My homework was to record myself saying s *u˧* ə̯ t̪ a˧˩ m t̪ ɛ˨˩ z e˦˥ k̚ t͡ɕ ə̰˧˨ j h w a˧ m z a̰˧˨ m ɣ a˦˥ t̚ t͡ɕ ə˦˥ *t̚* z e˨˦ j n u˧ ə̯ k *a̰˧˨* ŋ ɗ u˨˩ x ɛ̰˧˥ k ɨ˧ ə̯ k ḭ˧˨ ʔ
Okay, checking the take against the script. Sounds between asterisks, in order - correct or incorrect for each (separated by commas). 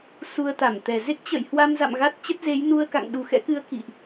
correct, correct, correct